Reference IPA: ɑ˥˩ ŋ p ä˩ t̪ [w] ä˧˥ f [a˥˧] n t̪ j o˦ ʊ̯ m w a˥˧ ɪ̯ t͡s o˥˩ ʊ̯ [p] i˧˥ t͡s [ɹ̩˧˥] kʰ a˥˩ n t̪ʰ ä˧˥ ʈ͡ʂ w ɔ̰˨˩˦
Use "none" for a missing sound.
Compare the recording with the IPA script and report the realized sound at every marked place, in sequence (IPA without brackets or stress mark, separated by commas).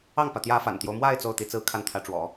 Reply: j, a̰˨˩, t̪, ɹ̩˥˧